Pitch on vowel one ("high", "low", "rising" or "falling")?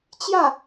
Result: falling